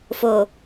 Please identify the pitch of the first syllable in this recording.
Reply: low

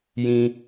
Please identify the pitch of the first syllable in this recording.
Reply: low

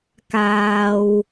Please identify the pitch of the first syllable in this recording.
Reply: low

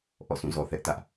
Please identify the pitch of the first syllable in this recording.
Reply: falling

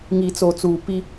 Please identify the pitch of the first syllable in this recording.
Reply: low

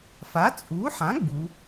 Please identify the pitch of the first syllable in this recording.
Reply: rising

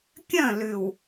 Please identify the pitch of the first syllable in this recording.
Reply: falling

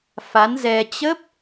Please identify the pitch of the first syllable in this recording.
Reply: rising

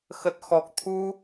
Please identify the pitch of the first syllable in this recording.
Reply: low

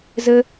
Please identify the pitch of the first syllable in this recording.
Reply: high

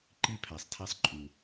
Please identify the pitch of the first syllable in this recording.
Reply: high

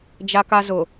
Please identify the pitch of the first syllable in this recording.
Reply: high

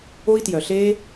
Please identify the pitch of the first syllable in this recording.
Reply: high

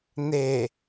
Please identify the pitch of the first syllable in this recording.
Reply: low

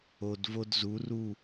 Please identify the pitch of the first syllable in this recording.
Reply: low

